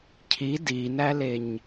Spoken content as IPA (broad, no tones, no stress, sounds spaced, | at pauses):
cʰ i d i n æ l e ɲ